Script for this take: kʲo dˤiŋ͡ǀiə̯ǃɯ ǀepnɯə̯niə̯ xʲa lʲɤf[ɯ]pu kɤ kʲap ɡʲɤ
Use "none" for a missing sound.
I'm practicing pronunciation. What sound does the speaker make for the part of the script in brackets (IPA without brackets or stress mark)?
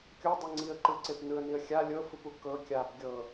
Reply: ɯ